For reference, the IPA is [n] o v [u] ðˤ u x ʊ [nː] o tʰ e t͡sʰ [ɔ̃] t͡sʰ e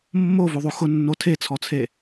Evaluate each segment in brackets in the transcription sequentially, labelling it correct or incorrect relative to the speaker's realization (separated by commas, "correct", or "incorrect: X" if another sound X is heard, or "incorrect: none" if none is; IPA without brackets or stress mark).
incorrect: mː, correct, correct, incorrect: ɔ